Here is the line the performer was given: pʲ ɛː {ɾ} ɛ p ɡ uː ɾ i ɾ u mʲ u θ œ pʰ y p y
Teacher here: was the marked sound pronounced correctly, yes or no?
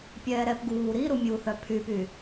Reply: yes